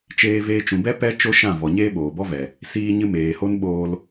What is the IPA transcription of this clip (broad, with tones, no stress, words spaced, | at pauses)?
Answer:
t͡ʃeː˧veː˧t͡ʃũ˨bɛ˦ pɛ˦ t͡ʃo˦ʃã˦˨vɔ˨ ɲeː˦ɓoː˨bɔ˦vɛ˨ | siː˧ɲɨ˧ meː˨ho˦nɓoː˧l